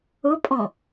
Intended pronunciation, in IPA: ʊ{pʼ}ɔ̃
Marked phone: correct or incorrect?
correct